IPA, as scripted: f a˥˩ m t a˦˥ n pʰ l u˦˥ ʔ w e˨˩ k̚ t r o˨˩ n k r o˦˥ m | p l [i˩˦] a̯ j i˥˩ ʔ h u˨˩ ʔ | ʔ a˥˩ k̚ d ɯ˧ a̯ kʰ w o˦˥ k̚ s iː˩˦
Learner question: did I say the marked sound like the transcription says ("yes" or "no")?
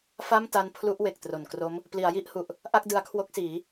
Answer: yes